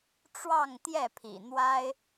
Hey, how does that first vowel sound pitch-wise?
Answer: falling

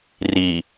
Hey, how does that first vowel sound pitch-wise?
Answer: low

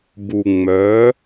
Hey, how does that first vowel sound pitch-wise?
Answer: low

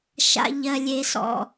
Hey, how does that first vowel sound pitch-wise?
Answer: low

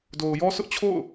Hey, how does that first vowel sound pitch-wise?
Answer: low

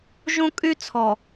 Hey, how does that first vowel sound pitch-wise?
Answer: high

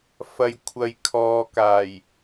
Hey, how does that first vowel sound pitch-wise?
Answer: low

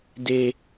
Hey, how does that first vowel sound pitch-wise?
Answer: low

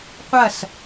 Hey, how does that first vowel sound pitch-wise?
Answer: falling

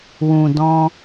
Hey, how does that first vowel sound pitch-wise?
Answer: low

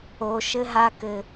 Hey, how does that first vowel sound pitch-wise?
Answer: low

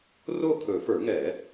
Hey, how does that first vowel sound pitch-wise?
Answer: falling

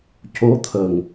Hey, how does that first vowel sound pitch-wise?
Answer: rising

